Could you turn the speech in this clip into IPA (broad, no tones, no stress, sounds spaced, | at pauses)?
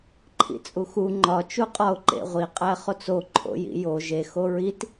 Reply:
ǃʰ ḭ t͡sʼ u x u ŋ͡ǃ ɒ t͡ʃ u qʼ ɒ ʊ̯ ǃ ḛ ʁʷ i qʼ æ χ o t͡s o ǃʰ o̰ j ḭ j o ʒ e x o ɹ i t